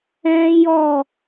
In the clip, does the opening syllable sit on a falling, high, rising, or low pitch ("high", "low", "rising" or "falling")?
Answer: high